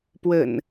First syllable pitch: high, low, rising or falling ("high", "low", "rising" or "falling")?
low